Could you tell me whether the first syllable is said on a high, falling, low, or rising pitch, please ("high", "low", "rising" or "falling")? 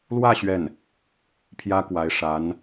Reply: falling